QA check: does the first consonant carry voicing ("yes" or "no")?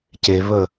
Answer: no